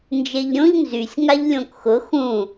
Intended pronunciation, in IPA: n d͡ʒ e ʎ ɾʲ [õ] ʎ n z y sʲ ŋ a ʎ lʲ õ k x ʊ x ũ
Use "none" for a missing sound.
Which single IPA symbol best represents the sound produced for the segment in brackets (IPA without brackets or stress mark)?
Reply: õ